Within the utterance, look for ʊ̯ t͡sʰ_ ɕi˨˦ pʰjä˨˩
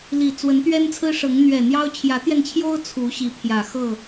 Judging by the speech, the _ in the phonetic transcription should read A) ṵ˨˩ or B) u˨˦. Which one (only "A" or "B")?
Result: B